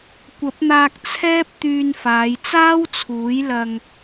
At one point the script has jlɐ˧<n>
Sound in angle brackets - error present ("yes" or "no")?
yes